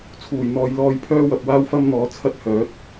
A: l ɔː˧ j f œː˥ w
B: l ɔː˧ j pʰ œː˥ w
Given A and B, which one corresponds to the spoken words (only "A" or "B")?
B